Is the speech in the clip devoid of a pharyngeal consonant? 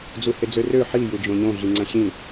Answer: no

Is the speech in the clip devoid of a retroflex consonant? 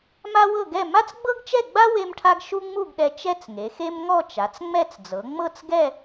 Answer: no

